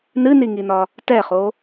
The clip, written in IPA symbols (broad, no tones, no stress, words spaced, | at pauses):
nɨniŋinɒ | tɛχo